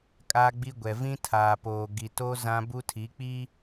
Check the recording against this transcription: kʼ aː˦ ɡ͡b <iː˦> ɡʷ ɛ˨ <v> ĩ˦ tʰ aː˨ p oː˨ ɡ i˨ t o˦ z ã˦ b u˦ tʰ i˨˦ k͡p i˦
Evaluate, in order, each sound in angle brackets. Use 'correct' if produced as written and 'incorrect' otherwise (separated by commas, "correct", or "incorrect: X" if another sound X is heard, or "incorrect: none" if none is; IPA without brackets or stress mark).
incorrect: i˦, correct